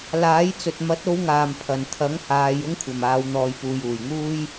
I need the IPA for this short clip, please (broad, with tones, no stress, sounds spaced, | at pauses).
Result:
l aː˨˥ j t͡s ɵ˨ t̚ m ɐ˨˥ t̚ o˨˧ w ŋ aː˨˩ m pʰ ɐ˨˩ n t̪ʰ ɐ˨˥ ŋ h aː˨˧ j ʊ˥ ŋ kʷʰ ɐ˨˩ m aː˨˧ w n̪ ɔː˨ j p uː˨ j uː˨˩ j ŋ uː˥ j